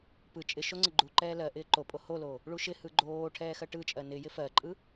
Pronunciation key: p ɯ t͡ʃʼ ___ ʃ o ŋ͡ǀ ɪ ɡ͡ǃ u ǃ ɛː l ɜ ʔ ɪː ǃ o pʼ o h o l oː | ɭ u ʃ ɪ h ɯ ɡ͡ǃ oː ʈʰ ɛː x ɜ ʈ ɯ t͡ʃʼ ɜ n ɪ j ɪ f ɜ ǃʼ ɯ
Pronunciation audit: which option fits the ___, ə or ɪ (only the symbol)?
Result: ɪ